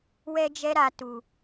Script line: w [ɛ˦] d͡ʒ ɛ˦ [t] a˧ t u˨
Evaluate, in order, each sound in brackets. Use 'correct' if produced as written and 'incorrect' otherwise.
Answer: correct, incorrect: ɾ

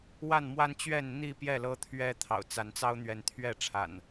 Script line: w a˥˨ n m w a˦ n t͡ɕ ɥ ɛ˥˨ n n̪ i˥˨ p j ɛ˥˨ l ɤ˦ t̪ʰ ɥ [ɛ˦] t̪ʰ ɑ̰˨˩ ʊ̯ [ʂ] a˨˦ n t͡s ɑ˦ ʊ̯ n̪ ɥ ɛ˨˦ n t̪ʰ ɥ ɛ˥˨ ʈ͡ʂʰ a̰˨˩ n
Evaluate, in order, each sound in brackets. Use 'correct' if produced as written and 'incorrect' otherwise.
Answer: correct, incorrect: t͡s

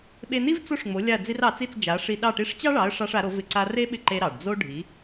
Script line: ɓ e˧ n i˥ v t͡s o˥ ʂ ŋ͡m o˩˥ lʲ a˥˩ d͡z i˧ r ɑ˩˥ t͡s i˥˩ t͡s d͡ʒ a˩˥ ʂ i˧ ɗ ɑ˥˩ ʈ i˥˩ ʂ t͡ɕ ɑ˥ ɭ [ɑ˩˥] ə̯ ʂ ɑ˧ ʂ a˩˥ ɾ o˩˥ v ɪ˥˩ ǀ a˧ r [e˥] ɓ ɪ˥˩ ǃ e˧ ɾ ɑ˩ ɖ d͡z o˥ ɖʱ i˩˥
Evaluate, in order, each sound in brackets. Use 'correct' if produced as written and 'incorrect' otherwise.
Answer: correct, correct

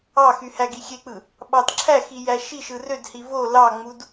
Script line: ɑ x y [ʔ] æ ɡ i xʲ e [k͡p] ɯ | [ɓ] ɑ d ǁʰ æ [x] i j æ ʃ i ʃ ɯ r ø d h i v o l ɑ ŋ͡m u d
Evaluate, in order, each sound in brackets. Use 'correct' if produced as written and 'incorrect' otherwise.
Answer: incorrect: h, correct, correct, correct

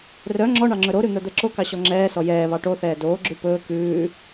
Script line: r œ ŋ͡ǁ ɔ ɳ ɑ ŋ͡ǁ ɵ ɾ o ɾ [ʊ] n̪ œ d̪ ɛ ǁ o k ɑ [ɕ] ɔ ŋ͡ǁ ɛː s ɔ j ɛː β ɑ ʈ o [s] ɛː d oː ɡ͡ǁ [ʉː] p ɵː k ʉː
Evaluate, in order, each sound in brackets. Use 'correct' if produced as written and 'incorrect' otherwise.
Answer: incorrect: ʉ, correct, incorrect: θ, incorrect: ʉ

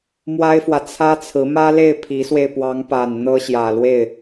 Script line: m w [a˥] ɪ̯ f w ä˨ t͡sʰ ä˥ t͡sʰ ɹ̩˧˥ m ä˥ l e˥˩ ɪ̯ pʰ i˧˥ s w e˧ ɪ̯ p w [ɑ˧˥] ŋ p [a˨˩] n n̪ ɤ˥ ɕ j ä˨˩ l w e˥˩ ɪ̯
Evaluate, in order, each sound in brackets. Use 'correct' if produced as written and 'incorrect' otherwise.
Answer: correct, correct, correct

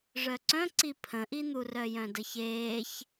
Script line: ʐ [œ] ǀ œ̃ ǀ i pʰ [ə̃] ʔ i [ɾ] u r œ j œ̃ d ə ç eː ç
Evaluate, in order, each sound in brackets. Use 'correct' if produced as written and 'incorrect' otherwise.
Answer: correct, correct, incorrect: n̪

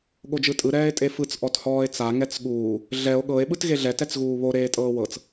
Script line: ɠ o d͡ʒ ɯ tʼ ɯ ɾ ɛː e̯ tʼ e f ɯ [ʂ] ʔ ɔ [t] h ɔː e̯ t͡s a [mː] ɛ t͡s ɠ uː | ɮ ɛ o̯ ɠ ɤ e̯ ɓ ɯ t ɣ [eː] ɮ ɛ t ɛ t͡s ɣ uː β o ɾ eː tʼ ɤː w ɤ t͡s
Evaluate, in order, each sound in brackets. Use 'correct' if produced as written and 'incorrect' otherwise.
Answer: incorrect: t͡s, correct, incorrect: ŋ, incorrect: e

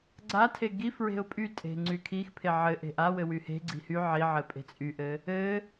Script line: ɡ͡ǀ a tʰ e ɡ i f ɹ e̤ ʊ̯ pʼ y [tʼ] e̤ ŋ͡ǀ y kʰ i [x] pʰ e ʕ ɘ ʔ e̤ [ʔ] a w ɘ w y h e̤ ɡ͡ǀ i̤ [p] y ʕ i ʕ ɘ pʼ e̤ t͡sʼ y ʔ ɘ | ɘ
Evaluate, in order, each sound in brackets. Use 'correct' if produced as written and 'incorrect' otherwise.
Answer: correct, correct, correct, incorrect: h

